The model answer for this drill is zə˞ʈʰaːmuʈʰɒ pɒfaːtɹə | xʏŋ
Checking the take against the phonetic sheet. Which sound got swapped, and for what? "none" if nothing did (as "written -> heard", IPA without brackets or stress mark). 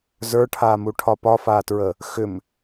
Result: ŋ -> m